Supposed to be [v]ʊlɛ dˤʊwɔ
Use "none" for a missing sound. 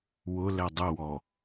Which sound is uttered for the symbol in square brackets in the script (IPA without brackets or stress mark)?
w